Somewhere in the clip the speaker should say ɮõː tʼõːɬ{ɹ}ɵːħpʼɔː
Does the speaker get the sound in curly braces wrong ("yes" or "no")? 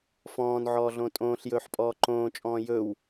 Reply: yes